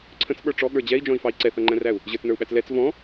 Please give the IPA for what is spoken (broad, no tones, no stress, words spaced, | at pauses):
ǀʰə̃t͡sɓə˞ ʈ͡ʂɔɠə˞ d͡ʑɛi̯d͡ʒɔ̃i̯fɑi̯ ǀɛθʌŋ͡ǃæ̃ræu̯ | ʑə˞t͡snə˞u̯ɓæt͡s lɛt͡s vɔ̃